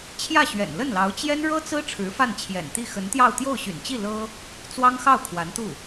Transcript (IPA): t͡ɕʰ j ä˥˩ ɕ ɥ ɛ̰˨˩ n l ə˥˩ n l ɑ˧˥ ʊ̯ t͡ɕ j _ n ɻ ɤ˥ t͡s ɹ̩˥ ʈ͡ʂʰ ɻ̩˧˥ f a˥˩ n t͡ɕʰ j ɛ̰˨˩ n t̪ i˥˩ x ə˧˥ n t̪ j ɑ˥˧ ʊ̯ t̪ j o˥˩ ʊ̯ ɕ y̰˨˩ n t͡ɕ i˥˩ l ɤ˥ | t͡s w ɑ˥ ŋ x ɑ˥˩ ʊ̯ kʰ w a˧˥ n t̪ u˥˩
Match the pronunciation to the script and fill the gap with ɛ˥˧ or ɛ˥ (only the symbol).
ɛ˥